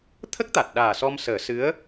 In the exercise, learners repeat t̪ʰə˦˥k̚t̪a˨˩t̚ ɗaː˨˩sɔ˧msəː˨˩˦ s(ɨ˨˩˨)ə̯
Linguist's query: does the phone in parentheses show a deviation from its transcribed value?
yes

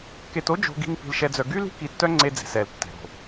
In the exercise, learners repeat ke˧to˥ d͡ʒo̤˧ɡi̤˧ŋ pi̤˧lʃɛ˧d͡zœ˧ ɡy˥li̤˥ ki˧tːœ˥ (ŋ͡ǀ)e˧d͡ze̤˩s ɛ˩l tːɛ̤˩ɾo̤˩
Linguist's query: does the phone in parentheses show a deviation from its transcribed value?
no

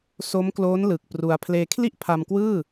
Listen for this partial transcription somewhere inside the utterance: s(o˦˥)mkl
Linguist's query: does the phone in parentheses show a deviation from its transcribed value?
no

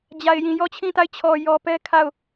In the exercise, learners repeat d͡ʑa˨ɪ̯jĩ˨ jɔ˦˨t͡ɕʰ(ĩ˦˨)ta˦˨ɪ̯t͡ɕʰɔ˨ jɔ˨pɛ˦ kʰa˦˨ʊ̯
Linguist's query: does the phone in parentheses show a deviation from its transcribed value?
no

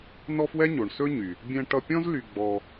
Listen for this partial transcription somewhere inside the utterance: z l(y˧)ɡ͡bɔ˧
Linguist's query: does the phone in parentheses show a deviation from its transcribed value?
no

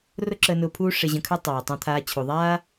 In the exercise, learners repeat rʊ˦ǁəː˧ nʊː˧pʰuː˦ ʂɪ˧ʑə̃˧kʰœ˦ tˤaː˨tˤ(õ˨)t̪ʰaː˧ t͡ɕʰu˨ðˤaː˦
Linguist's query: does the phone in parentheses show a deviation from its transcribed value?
yes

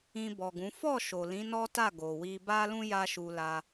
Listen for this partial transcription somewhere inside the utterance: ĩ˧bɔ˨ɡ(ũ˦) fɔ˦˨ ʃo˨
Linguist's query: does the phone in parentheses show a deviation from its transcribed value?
yes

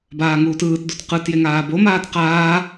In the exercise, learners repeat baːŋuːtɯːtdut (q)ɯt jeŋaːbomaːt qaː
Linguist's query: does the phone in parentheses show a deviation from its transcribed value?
no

